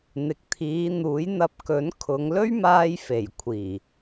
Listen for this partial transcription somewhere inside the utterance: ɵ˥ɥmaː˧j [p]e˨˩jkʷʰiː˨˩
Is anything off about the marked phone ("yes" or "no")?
yes